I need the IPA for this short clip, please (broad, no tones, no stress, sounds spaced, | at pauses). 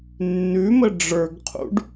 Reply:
nː ʉ m ə ɖ͡ʐ ə˞ ɡ qʰ ṵ ɖ